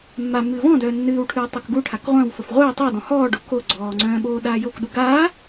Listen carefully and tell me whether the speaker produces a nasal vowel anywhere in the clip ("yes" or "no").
yes